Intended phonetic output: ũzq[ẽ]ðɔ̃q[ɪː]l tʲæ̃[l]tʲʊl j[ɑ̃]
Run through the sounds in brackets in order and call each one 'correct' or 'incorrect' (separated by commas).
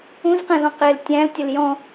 incorrect, correct, correct, incorrect